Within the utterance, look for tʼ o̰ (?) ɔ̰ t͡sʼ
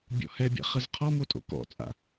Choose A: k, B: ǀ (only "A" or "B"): A